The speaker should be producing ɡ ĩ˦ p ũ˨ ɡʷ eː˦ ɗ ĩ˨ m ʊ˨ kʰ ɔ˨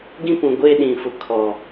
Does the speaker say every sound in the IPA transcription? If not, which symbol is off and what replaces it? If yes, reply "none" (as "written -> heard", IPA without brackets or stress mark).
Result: m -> f